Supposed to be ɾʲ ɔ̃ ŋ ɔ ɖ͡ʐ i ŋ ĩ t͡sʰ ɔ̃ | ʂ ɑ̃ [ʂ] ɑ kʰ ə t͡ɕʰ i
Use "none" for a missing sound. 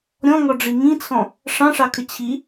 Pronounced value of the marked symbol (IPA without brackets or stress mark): ʂ